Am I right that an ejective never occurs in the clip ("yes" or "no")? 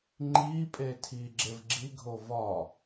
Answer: no